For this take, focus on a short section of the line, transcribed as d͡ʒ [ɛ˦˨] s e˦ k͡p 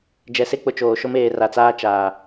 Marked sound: incorrect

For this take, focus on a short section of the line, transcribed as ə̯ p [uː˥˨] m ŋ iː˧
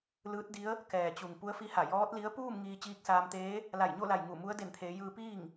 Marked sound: correct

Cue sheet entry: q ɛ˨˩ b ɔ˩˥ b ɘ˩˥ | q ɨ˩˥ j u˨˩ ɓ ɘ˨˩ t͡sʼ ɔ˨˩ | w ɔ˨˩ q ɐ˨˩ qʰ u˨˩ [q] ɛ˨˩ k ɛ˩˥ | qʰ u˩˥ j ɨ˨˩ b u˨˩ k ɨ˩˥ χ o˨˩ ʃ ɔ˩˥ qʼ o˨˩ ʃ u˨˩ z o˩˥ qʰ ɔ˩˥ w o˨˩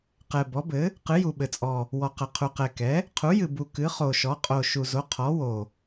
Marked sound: correct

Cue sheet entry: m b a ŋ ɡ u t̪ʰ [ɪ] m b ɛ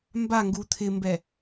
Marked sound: correct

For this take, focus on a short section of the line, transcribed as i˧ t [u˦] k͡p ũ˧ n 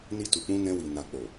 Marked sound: incorrect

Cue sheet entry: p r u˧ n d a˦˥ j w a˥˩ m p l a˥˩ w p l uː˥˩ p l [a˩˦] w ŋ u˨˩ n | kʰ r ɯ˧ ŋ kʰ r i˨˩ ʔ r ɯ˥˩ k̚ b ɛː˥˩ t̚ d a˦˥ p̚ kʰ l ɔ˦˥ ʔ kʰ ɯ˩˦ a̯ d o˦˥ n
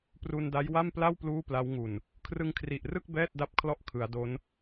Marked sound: incorrect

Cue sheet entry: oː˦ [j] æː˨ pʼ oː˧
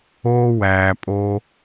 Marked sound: incorrect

